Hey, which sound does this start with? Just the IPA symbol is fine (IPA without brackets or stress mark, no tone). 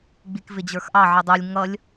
ɡ͡b